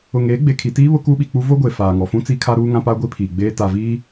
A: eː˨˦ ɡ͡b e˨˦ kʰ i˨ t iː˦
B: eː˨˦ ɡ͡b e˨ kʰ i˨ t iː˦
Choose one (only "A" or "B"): B